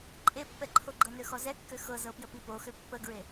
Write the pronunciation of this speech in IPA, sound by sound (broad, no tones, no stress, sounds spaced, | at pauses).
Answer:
ǃʼ e pː ɛ ǃʰ o ɡ͡ǃ ɤ n ø x ɔ z ɛ kː ø x ɤ z ɤ p j ə p i p o x ø pː ə ɡ ɹ e